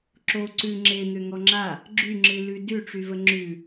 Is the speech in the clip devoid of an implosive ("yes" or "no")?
yes